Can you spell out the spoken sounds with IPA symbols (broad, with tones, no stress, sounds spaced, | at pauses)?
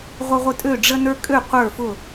ʁʷ ə˦ ʁʷ ə˦ tʼ ø˥˩ ɖ͡ʐ ə˦ n ə˞˦ kʼ ø˥˩ qʷ ə˞˥˩ f ʊ˥˩